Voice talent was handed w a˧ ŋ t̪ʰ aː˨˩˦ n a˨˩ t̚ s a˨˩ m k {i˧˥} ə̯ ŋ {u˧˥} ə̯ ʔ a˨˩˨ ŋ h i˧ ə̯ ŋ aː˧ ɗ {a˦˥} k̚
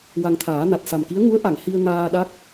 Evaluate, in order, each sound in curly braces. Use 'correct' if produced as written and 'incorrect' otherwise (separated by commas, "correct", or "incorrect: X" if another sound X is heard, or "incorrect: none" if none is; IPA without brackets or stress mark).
correct, correct, correct